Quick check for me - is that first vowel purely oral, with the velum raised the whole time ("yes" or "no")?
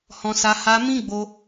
no